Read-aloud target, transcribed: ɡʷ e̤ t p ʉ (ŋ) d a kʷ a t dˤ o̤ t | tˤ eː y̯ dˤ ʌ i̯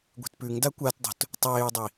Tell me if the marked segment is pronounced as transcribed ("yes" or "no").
yes